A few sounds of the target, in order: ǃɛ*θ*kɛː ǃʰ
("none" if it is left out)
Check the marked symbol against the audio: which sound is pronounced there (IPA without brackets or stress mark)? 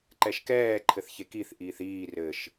ʃ